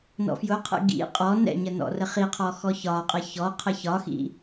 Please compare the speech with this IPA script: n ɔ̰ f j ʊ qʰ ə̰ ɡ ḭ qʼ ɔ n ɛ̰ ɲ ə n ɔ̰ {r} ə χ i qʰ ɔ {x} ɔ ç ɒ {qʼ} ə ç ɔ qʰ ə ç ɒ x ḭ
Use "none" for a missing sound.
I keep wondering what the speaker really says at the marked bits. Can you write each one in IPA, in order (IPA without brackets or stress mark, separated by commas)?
r, x, qʼ